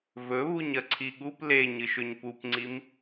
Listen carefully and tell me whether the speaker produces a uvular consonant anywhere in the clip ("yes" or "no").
no